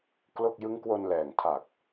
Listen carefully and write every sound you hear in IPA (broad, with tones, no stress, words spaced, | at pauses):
klo˥˩k̚ jɯ˦˥ŋkwo˧n lɛː˨˩ŋtʰa˨˩k̚